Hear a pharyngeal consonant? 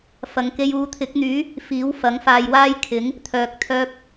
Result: no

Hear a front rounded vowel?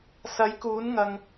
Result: no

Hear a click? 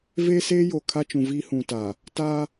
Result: no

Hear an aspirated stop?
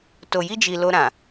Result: no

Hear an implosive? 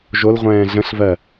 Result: no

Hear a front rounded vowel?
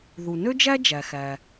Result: yes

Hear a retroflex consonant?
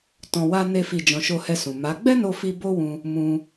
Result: no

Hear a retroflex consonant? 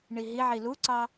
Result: yes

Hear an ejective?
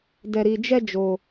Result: no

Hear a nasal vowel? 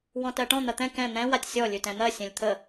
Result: yes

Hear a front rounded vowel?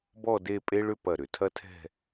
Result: yes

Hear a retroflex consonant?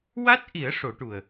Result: yes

